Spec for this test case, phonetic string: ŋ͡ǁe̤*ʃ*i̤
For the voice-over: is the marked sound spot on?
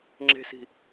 no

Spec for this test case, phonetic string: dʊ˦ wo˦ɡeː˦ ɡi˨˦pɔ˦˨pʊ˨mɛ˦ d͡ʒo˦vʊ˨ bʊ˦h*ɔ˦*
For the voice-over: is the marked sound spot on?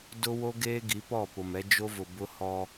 yes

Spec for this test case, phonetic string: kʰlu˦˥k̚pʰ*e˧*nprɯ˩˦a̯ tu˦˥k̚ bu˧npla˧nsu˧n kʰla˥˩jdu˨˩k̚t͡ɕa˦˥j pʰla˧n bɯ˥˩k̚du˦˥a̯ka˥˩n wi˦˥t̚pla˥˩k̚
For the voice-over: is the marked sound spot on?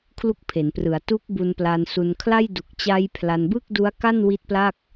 no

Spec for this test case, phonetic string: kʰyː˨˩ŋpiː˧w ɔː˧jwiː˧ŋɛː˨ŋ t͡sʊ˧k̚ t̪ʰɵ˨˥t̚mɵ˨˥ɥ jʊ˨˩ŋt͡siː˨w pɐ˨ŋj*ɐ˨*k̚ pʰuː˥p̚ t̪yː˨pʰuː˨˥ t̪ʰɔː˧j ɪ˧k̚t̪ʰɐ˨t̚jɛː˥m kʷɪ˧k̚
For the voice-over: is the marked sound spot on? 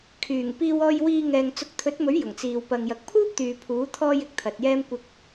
yes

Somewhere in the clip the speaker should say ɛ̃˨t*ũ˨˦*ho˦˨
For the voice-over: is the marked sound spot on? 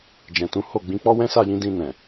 yes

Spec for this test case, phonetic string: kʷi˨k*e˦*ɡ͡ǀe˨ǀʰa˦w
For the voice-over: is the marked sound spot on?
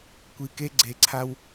yes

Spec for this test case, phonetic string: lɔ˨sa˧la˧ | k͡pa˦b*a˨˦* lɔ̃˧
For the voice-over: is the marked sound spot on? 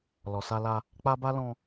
no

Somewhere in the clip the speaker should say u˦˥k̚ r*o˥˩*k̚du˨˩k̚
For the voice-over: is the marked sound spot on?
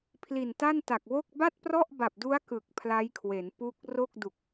yes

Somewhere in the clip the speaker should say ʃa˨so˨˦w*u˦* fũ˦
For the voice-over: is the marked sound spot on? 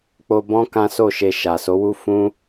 yes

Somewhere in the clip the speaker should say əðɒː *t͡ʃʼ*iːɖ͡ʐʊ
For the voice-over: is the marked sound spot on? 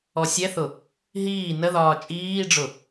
yes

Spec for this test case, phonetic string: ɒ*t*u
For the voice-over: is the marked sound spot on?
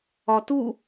yes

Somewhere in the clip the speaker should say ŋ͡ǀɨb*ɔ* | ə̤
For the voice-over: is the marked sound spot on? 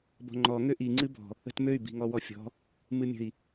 no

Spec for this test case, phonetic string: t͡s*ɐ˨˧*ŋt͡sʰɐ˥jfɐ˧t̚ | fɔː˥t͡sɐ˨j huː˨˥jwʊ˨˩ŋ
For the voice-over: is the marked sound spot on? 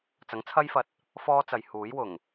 no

